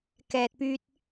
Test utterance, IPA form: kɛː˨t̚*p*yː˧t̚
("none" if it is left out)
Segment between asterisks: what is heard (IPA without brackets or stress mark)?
p